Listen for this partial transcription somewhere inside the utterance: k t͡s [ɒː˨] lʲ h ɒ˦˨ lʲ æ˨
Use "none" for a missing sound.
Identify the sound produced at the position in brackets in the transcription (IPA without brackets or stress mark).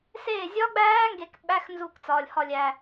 ɒː˨